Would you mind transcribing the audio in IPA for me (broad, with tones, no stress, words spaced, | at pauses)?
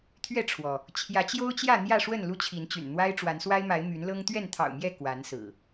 t̪ʰɥɛ˥˨ʈ͡ʂʰwɔ˩ | t͡ɕʰjä˨˦t͡ɕjo˦ʊ̯t͡ɕjä˥˨ n̪jä˥˨ʂwə˥˨n lu˦t͡ɕʰi˨˦nt͡ɕy̰˨˩n n̪wa˦ɪ̯ʈ͡ʂwa˨˦nswa˦ɪ̯ma˨˦ɪ̯ my˨˦nlɤ˦ŋ t̪ɥɛ˥˨nt̪ʰɑ̰˨˩ʊ̯mjɛ˥˨ kwa˨˦nsɹ̩˨˩